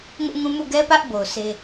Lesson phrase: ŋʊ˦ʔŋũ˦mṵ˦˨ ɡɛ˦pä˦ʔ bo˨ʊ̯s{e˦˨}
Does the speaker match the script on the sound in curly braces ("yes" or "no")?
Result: no